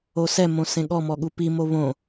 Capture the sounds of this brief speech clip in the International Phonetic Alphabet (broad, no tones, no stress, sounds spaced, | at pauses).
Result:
o s ɛ m õ s ẽ ɠ ɔ m ɔ ɠ u p i m o β õ